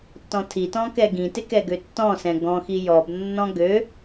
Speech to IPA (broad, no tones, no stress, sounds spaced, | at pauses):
t ɔ̃ tʰ i t ɔ̃ k ɛ ɡ ĩ t ɪ k ɛ ɡ ø tː ɔ̃ s ɛ̃ ɡ ɔ̃ x i j ɔ b nː ɔ̃ ɡ ø